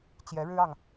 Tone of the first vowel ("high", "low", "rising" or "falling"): rising